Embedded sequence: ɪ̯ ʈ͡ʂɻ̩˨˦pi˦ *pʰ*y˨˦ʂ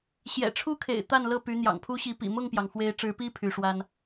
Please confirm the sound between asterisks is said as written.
yes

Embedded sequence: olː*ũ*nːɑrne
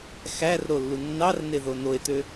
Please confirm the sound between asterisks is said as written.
no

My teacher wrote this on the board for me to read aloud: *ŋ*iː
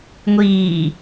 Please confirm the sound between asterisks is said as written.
no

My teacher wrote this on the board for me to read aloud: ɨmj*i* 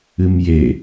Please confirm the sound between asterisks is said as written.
no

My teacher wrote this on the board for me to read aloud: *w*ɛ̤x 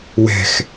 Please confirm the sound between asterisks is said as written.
yes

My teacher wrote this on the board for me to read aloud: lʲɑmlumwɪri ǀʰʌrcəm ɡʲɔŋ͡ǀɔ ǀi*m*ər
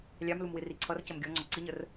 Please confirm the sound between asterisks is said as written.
no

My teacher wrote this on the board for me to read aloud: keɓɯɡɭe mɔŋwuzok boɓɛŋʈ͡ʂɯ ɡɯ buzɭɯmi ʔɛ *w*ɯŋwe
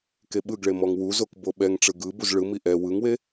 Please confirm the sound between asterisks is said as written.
yes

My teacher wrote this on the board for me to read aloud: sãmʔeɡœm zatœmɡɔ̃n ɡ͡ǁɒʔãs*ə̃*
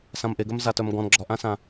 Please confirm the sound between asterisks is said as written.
no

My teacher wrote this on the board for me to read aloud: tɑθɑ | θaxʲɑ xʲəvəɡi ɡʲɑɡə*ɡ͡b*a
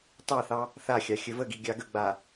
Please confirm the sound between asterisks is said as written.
yes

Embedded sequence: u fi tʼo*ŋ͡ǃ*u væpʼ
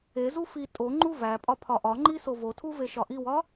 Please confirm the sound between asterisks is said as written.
yes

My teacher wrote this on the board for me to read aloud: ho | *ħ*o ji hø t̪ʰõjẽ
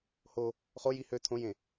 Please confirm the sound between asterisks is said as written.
no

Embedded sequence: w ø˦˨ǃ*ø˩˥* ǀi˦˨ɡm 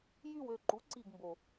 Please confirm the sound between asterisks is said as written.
no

